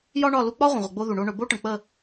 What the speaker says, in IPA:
j ɒ˦ ɳ ɒ˦˨ l u˧ k͡p ɒ˦ ʁʷ ə̃˨ ʁʷ ə˨ ɡ͡b o˦ ð u˨ ɳ o˦ ɳ ɵ˨˦ b o˦ ʈ ə̃˨ k͡p ə˦˨

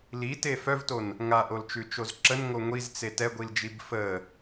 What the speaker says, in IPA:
l i t e f œ v t o n | ŋ a ʔ o l t͡ʃ ʉ t͡ʃ o z ǁ ə n ŋ o ŋʷ i z t͡s e t ɛ ɡʷ i l d͡ʒ i b f ə

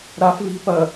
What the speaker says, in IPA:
ɾ a f v i̤ p ɐ

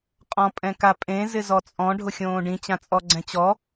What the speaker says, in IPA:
qʼ ɔ̃ pʼ ɛ̃ k a pʼ ẽ z ɪ z ɔ t͡sʼ ɔ̃ ɖʱ ʊ xʲ õː ɖ ĩ t͡ɕ ã t͡sʼ ɔ ɡ͡ǀ ɛ̃ t͡ɕ ɔ

